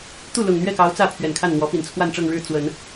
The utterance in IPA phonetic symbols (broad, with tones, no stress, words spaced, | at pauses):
t̪u˥˩lʊ˨˩ŋn̪ɥɛ˥˩kɑ˧˥ʊ̯ t͡sä˥˩pʰɥɛ˨˩nkʰa˥˩nn̪wɔ˧˥ pi˨˩nt͡sʰwa˥˧nʈ͡ʂɤ˥˧ŋɻɻ̩˥˩ t͡swə˨˩˦n